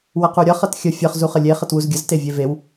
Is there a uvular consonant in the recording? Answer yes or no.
yes